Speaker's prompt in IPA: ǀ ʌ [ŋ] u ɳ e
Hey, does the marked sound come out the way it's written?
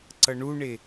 no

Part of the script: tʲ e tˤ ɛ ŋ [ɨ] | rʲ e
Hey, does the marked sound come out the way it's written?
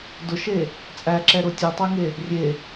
no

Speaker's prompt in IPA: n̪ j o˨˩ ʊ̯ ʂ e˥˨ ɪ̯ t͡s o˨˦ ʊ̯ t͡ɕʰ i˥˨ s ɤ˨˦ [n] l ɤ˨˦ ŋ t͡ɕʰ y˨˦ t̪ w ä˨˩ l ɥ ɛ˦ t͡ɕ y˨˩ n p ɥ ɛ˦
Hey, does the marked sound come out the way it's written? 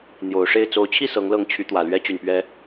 no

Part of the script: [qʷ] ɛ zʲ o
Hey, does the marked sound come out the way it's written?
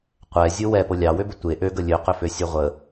yes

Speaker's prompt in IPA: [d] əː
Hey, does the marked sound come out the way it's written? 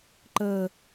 no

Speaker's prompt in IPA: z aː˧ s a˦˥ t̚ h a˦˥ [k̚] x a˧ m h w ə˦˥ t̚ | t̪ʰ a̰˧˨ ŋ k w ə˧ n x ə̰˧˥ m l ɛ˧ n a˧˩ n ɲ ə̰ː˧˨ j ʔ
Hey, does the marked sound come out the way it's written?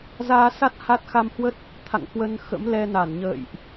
no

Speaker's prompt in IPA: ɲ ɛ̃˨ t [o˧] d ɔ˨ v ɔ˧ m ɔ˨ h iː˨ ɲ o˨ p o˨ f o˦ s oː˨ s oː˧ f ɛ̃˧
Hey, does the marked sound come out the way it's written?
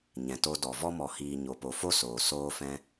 yes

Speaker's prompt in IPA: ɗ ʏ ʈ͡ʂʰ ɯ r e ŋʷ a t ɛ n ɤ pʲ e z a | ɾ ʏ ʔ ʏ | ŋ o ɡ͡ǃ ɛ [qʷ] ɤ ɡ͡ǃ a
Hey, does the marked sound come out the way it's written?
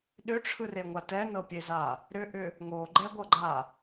no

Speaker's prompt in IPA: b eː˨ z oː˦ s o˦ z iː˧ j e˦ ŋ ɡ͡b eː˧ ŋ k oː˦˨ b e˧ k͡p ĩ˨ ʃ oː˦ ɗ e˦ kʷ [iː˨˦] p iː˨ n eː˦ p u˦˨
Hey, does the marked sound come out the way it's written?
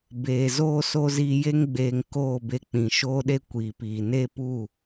no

